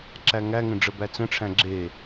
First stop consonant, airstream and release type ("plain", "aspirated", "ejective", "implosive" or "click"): click